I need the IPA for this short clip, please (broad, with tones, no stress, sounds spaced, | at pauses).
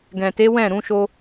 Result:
ɡ ɛ̃˨ t e˨˦ w ɛ̃˦˨ ɾ ũ˨˦ ʃ o˦